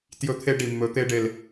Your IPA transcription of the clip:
t j ɵ˦ t̪ʰ e˦ ɖ i˨ mː ɵ˨˦ t̪ e˧ ɖ e˨ l

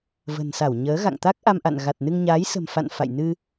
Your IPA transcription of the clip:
v ə̤˨˩ n s a˧˩ w ɲ əː˨˦ ɣ a̰˧˨ ŋ t̪ a˦˥ k̚ ʔ a˧ m ʔ a̰˧˨ n ɣ a˨˩ t̚ n ɨ˧ ŋ ɲ aː˨˦ j s ə̤˨˩ m f a̰˧˨ n f a̰˧˨ j n ɨ˧

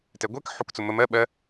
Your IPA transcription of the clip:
t ɛ ɡʷ ɛ k ħ u k t͡s ʊ m ə m ɜ ɓ ɜ

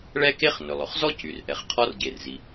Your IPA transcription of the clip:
ɭ ɛ˥ k e˥ χ n ɵ˩ lˠ ɵ˩ χ z ɔ˥ c y˩ r ʔ ɛ˩ χ qʰ ɔ˥ r ɟ e˩ r z i˩

